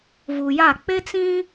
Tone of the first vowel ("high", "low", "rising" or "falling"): low